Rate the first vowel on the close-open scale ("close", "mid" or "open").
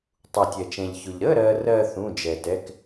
close